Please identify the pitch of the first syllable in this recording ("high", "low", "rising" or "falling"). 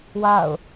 falling